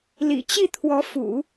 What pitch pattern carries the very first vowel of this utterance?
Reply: low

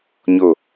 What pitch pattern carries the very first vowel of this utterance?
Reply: falling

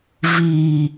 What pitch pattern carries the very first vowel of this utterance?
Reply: low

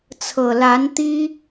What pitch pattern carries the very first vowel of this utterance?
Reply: low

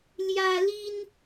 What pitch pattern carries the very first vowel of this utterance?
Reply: high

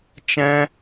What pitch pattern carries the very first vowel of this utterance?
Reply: high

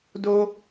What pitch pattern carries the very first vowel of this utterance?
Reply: high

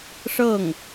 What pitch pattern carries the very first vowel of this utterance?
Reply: falling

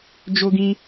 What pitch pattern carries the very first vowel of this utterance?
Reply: high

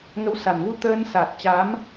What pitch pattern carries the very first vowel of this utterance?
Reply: rising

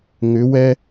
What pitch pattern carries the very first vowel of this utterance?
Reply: rising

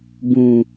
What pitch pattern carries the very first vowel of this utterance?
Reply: low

